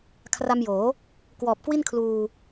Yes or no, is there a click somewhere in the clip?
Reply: no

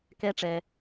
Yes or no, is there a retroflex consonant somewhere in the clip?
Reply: yes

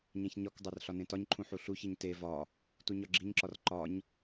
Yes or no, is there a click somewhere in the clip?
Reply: yes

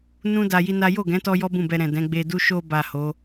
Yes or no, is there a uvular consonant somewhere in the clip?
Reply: no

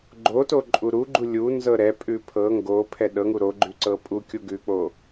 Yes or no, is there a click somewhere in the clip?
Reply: yes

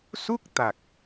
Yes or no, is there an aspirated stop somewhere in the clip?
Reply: no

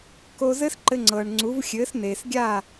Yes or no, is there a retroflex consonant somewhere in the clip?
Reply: yes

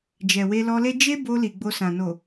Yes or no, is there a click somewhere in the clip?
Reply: no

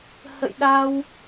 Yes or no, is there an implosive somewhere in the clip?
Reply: yes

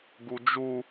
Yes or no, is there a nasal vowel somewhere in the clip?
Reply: no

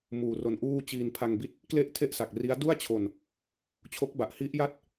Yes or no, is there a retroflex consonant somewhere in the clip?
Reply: no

